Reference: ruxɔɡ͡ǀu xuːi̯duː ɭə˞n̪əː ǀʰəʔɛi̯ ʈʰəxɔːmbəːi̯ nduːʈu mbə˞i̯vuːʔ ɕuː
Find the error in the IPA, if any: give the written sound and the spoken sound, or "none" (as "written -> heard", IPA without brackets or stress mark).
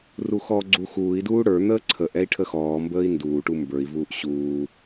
ɭ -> ɽ